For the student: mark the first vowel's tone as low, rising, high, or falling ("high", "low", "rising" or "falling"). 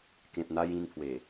low